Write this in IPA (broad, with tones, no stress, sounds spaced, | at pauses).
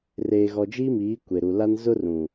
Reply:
r eː˨ ɣ ɔ˨ d͡ʒ iː˦ m iː˨˦ kʷ e˨ ɾ u˨ l a˦ n z ʊ˦ r ũ˨